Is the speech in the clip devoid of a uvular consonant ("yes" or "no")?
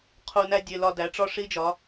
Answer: no